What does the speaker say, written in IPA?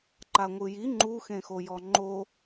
ǃ a ŋʷ ɯ j i ŋ͡ǃ u x ẽ x o j ɔ ŋ͡ǃ o

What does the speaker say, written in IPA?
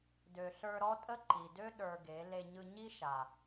d ø˨ ɬ ə˞˧ ɾ ɔ˦ tʼ ə˦ ǃ i˨ d ø˦ ɗ ə˞˧ ɡ e˨˦ l e˧ ɲ ɯ˧ ɲ i˦ ʃ a˨

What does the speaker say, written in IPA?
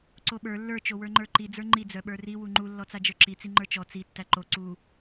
ǀ o ɓ ə˞ lː ə˞ t͡ʃ o w ə˞ ŋ͡ǃ ə˞ ǃ i d͡z ə˞ ŋ͡ǃ i d͡z œ ɓ ə˞ r i w u ŋ͡ǃ u lː ɔ t͡s a d͡ʒ ə˞ ǁ i t͡s i ŋ͡ǃ ə˞ t͡ʃ ɔ t͡s i tː æ ǃ o ǀ u

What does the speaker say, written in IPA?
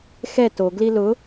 x ɛ t o ɡ l i l ʊ

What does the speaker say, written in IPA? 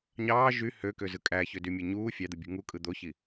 ɲ ɑː ʒ y h ø k ø z ɯ kʼ æ ç ø d y mʲ e ɲ uː fʲ ɑ d̪ ɯ bʲ ṳ ŋ u kʼ ɯ d̪ o ç i

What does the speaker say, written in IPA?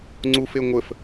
ŋ͡ǀ u f e ŋʷ ə f

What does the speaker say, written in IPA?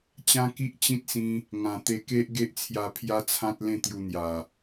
t͡ɕ ã˦ k i˦ ʔ t͡ɕ ĩ˦ t̚ s ĩ˧ | ŋ ã˨˩ t̪ e˧ k e˦ ʔ ɡ e˦ ʔ t͡sʰ j a˧ pʰ j a˦ t͡sʰ ã˦ t̚ l ẽ˥˧ t̪ j u˧ n̪ j a˨˩

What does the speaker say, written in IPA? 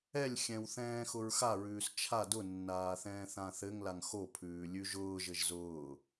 ɛ lʲ xʲ ɛ̃ w θ ɛ̃ː x ʊ ɹ x a ɹ ʉː s t͡ʃʰ a d ʊ nː aː θ ɛ̃ː θ ã θ ɘ ŋ l a ŋ x o pʰ ʉː lʲ ʉ ʒ ʊː ʒ ɘ ʒ z ʊː

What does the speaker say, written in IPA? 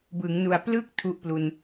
b ɯ˩˦ ŋ n u˨˩ a̯ p l ɯ˥˩ k̚ tʰ u˥˩ ʔ p l u˧ n

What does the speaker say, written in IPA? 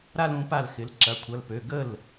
ɾ a˥ l ũ˧˥ p a˥˨ l x ɪ˧˥ l ǁ ɐ˧˥˧ kʷʰ ɐ˧˥˧ l p ø˧˥˧ ɡ ə˥˨ l

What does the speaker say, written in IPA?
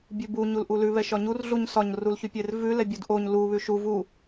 bʲ ʉ b u ɲ u l ʔ u l ʉ β ɛ ʃ ɒ ɲ u r ɮ u ɲ s ɒ ɲ r u l ç ʉ pʲ e r v ʉ l ɛ bʲ u d ʔ o ɲ l u β ʉ ʃ u v u

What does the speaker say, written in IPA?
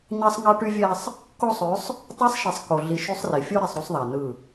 ɲ ɑ˦ sˤ ŋ ɑ˦ ʈ y˦ vʲ æ˦ sˤ | k o˦ sˤ ø˨˦ sˤ | tˤ æ˦ sˤ ʃ i˨ sˤ k o˨ ɮ i˨ ʃ y˦ sˤ r i˨ fʲ o˦ ɾ i˨ sˤ ɾ u˦ sˤ ðˤ æ˨ n ɯ˦˨

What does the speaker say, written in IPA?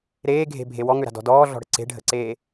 ɾ eː ɡʱ e̤ bʱ e w ɔ ŋ ø ɾ a̤ d ɔ̤ d ɔː ɮ ɔ̤ ɽ ə̤ ǀ e̤ ɖʱ ə̤ ǀ eː

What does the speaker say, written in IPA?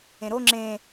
ẽ ɾ o ŋ͡ǁ ẽ

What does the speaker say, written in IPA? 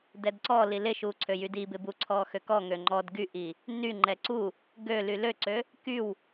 d ɛ d ǀ ɔ l i l ɪ ʃ u ǀʰ ø j y d i b ɪ b u ǀʰ ɔ x ø k ɔ ŋ ø ŋ͡ǃ ɔ d ɡ y ʔ i | n y ŋ͡ǃ ɛ ǀ u | ɡ ø l y l ø ǀ ø | k y w

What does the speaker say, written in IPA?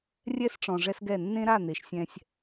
rʲ ɛ˦ s ʈ͡ʂ ɔ̃˨ ʐ ɛ˦ s ɡ ɛ˦˨ nː ẽ˦ ɾ a˦˨ n̪ e˨ ʃ sʲ ɛ̃˦ sʲ

